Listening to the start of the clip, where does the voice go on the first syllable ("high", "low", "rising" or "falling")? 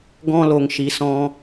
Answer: high